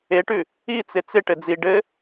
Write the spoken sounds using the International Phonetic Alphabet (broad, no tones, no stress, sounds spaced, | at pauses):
e ʈ ʉ | i t͡s ɪ t͡s ɪ ʈ ɘ d͡z i ɖ ɘ